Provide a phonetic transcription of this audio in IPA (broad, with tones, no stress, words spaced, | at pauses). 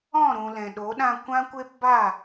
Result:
ɔ̃˦˨ɾũ˨ lɛ̃˨ɗo˨˦ɗã˧ kʷã˦kʷe˦p ba˦˨